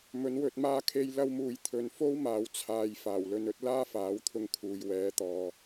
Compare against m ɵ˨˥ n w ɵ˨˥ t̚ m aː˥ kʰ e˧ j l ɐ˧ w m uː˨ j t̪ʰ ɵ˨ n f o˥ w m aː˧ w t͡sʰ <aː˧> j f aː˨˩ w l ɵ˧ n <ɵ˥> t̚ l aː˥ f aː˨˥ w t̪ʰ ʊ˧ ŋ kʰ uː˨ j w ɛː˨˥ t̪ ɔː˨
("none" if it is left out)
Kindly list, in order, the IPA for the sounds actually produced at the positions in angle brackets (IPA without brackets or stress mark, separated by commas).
aː˧, ɵ˥